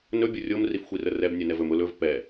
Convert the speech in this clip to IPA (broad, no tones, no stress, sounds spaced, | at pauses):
n ɵ bʲ ʊ rʲ o m r i f xʷ i r ə r ɛ b nʲ ɛ n ɛ v ɵ m ʊ l ɵ v p ɛ